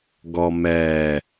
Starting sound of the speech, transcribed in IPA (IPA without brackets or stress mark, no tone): ɡ